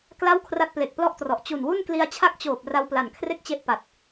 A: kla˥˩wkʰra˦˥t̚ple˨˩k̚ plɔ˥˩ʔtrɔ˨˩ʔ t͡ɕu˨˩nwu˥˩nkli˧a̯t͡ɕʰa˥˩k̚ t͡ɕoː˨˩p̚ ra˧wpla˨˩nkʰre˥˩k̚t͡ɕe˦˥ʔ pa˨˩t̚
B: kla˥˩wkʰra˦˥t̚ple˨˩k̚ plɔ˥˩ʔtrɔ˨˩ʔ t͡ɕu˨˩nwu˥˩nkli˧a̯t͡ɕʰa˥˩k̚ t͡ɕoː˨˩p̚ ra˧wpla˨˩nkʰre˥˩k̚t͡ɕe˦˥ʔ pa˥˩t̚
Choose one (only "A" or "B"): A